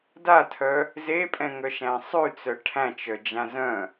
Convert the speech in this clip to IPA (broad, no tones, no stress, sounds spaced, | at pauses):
d a tʰ œ | z e pʼ ɛ̃ ŋ œ ʃ æ̃ sˤ ʉ t͡s œ ʈʰ æ̃ t͡ʃ œ d͡ʒ ã z œ̃